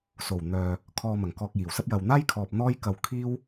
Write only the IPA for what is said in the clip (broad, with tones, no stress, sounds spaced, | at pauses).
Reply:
s o˨˩ w n̪ œː˨ | kʰ ɔː˧ m ɐ˨˩ ŋ k ɔː˧ k̚ j iː˨˩ w s ɐ˥ p̚ j ɐ˨ w n̪ aː˥ j kʰ ɔː˨ p̚ n̪ ɔː˥ j k ɐ˧ w kʰ iː˥ w